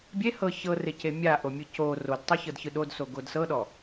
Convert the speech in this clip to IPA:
bʲ e h ɤ ç ɤ r e c e mʲ a ʔ o mʲ ɯ c o r o d tˤ ɤ ç ɤ d ç ɯ ɗ o d s o ɡ o d s ɤ ɗ ɔ

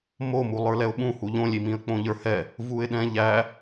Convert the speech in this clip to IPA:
m o m u lˠ ə˞ l ɛ ʊ̯ ɓ ũ h u ʎ õ lʲ i m ĩ ə̯ k͡p õ ʎ ə˞ h ɛ | v u ɪ̯ ɗ ɛ̃ ʎ æ

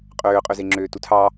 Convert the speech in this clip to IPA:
qʼ øː qʼ ø z e ŋ͡ǁ øː t u tʰ ɑ

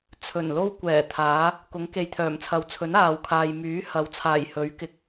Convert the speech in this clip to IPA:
t͡sʰ ɵ˨˩ n l o˥ w kʷ ɛː˨˩ t̪ʰ aː˨˥ | k ʊ˨˥ ŋ k e˨ j t̪ʰ œː˨˩ m t͡sʰ ɐ˨˧ w t͡sʰ ɵ˨˥ n aː˨ w kʰ aː˨ j m yː˨˥ h ɐ˨˥ w t͡sʰ aː˨˩ j h ɵ˨˥ ɥ k ɪ˨˥ k̚

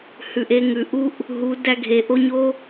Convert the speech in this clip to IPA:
h ʉ˨ ʔ e˧ ŋ ʉ˨ ʔ u˦ ʔ | ɦ u˨˦ d æ˧ ɡʱ e˨ ʔ o˧ ɲ o˦

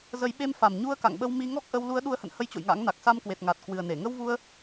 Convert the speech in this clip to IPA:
z ə˨˦ j ɓ e˧ m f a˨˩ m ɲ u˧ ə̯ k a̰˧˨ ŋ ɓ ə˧ w m i˧ ŋ ɔ˦˥ k̚ ʔ ə˧ w l u˨˦ ə̯ ɗ u˨˦ ə̯ h ə̰˧˨ n h ə˧ j t͡ɕ o̰˧˨ j ŋ a̰˧˥ ŋ n a˨˩ k̚ s a˧ m k w e˨˩ t̚ ŋ a˨˩ t̚ k w ɨ˨˩ ə̯ n e˧˩ ŋ ə˧ w v u˧ ə̯

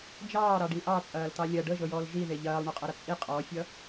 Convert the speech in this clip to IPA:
d͡ʒ ɑː ɾ ɑ ɖ i ʔ ɑ t͡sʼ ɐː l t ɑ lʲ ɐ ɖ ə ʒ ɤ j ɔː l ʒ i ð e ʎ ɐː lˠ ɳ o qʼ ɐ ɾ ɐ t͡sʼ i qʼ ɔ fʲ ʌ

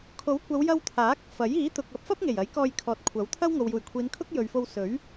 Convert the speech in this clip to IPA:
kʰ o˨˥ w kʷ ɐ˨˧ w j ɐ˧ w t̪ʰ aː˨˥ k̚ f ɐ˨˥ j iː˨˥ t̪ ʊ˨ k̚ ɐ˨˥ p̚ f ɐ˥ p̚ ŋ e˨˩ j ɐ˨˥ j k ɔː˧ j kʰ ɔː˨ t̚ kʷʰ ɐ˨˥ w t̪ʰ ɐ˥ w ŋ o˨ w j uː˨˩ j kʷʰ iː˨˧ n kʰ ʊ˥ k̚ j ɵ˨ ɥ f o˧ w s ɵ˨˥ ɥ

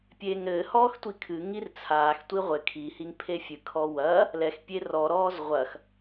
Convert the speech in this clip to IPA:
pʲ eː ŋ ɾ ɘː h ɔː x tʷ i kʰ ɨ ŋ i r t͡sʰ aː x tʷ i ʁʷ ɘ kʰ i h i ŋ pʰ e fʲ ɨ kʰ ɔ w ɐː | l ɛ x pʲ e r ɔ ɾ ɔː z ʁʷ ɐ x

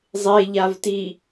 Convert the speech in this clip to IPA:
zˤ e ʎ a v t i

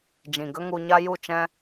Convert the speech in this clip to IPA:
d͡ʒ ĩ˨ ɡ ə˦ ŋ u˧ ɲ a˦ j u˦˨ t͡ʃ ɛ̃˦

